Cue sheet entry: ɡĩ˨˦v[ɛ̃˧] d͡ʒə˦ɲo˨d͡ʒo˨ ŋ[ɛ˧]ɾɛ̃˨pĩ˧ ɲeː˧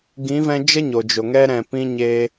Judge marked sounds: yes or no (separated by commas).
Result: yes, yes